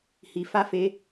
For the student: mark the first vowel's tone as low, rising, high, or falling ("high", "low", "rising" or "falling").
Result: low